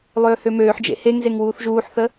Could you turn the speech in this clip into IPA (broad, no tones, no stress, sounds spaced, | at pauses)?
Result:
lˠ øː h ø m øː ħ d͡ʒ ḛ h e ŋ z e ŋ w uː θ ʒ uː ħ θ ə